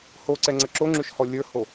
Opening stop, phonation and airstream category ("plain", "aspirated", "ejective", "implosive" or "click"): click